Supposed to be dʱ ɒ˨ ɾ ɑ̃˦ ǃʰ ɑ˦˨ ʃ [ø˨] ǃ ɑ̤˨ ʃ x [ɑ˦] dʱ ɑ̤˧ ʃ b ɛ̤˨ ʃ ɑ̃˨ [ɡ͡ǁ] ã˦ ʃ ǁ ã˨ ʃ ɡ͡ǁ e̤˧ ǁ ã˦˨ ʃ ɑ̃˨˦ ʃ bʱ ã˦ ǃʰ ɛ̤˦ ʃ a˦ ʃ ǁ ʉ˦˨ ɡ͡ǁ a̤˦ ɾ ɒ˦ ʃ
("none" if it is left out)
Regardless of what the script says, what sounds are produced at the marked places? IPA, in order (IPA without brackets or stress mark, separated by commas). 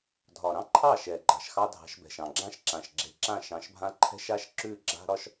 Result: ɛ˨, ɑ˦, ɡ͡ǁ